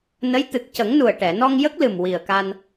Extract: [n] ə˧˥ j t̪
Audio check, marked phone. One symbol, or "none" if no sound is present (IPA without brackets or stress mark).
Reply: n